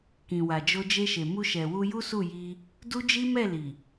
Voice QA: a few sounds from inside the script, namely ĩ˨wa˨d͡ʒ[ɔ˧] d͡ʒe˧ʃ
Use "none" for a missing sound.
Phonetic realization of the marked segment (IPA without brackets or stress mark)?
o˧